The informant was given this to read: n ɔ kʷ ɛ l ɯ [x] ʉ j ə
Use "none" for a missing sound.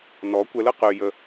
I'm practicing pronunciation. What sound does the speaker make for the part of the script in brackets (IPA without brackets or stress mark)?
q